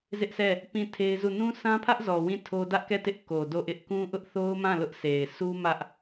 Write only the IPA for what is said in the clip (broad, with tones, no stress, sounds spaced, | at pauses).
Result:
z ɪ˦ ʔ s ɛ˦˨ | p ĩ˦˨ tʰ e˦ ɪ̯ z u˦˨ n ũ˦ sʰ ã˦ pʰ ä˦ ʔ z ɔ˨ w ĩ˦˨ tʰ o˦ d ä˦ ʔ k ɛ˦˨ t ɪ˦ ʔ k o˨ d o˦˨ ʔ ɪ˦ ʔ k ũ˦ ʔ ʊ˦ ʔ θ o˦ ʊ̯ m ã˦˨ l ʊ˦ ʔ s e˨ ɪ̯ sʰ u˦ m ä˦ ʔ